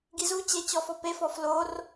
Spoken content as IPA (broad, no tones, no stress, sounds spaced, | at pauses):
ɡ i z u t͡ɕ e t͡ɕ ɔ f ɔ p e f ɔ f l o r